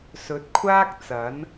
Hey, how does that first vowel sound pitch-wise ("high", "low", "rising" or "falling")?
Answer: rising